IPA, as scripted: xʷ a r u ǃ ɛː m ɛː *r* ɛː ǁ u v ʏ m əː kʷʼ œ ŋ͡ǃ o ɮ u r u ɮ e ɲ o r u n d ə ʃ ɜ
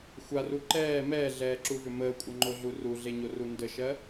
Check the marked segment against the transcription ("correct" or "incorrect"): incorrect